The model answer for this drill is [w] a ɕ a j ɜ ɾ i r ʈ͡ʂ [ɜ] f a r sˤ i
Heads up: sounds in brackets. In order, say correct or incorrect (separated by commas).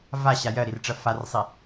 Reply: incorrect, correct